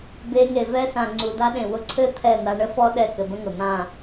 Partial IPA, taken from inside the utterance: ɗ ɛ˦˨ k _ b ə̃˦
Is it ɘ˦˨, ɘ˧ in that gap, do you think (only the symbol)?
ɘ˧